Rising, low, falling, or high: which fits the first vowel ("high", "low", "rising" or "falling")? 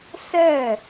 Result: falling